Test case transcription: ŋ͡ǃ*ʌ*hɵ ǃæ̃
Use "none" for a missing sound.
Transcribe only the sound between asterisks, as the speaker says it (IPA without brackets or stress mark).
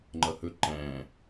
ʌ